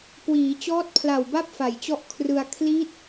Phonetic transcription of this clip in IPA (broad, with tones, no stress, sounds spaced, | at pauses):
k w iː˩˦ t͡ɕ ɔː˦˥ t̚ pʰ l a˨˩ w b a˥˩ p̚ f a˨˩ j t͡ɕ ɔ˦˥ ʔ kʰ r ɯ˧ a̯ kʰ l i˦˥ t̚